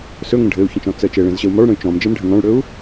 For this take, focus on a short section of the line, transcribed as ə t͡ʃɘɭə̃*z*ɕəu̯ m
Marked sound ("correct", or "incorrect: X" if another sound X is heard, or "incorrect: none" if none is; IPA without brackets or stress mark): correct